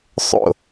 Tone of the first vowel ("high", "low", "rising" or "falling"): falling